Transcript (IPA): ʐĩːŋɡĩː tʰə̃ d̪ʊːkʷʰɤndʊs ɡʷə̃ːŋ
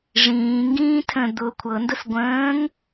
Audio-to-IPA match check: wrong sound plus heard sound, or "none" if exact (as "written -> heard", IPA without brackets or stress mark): none